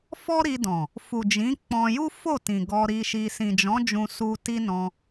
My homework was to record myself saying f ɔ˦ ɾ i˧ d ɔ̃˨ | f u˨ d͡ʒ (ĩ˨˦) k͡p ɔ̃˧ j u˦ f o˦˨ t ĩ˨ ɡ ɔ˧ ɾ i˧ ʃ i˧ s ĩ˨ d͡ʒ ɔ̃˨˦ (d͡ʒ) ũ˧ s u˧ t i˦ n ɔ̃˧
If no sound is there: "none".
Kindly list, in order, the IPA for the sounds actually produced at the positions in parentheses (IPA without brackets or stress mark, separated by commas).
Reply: ĩ˨˦, d͡ʒ